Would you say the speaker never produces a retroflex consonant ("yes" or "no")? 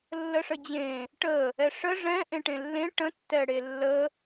no